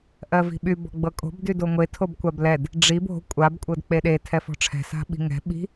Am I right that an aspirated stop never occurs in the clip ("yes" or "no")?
no